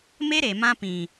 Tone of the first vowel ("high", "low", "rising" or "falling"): high